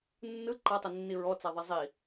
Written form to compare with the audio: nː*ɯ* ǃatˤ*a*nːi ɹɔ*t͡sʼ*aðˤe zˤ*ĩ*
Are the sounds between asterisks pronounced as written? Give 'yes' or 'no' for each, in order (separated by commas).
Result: yes, no, no, no